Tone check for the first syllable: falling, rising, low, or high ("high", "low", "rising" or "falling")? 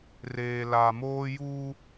low